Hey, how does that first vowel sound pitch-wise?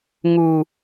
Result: high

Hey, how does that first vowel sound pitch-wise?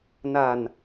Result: low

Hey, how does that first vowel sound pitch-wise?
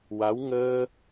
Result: rising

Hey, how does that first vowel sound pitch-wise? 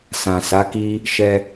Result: low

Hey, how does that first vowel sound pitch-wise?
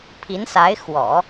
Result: rising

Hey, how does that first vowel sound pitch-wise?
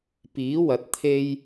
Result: rising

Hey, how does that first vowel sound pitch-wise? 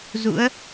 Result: rising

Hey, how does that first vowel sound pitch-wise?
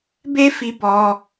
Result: high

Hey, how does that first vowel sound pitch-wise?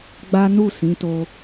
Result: high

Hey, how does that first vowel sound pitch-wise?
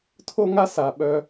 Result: high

